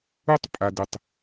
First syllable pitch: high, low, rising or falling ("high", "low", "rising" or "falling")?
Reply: high